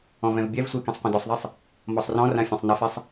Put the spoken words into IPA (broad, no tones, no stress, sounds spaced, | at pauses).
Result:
ɔ̃ v ɛ̃ v bʲ ɛ v sʷ e k ẽ sˤ qʷ ɐ̃ d ɔ sˤ ðˤ i sˤ | m ɔ sˤ r ɔ̃ r ã fʲ ɛ̃ sˤ n ɐ f ɛ sˤ